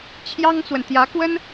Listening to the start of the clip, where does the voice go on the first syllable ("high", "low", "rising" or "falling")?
high